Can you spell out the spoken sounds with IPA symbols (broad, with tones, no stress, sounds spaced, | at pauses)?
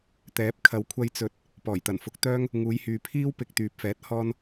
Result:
t̪ ɛː˨˥ p̚ kʰ ɐ˨˥ w kʷʰ ɐ˧ j t͡s ɵ˨˥ t̚ | p ɔː˨˩ j t̪ ɐ˨˩ n f ʊ˨˥ k̚ t̪ œː˥ ŋ | ŋ uː˨˧ j h yː˨ pʰ iː˥ w p ɪ˧ k̚ t̪ yː˨ p̚ f ɛː˨˥ t̚ h ɔː˧ n